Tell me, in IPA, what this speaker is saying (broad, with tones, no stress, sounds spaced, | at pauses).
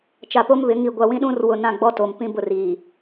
t͡ʃ a˨ p o˦ m β ɪ˨˦ ŋ i˨ ɡʷ a˨ w ĩ˦ ɗ ũ˦ r w ʊ˦˨ n ã˦˨ ɡ͡b ɔ˦ t o˨ m p ĩ˦ b ʊ˦˨ r iː˨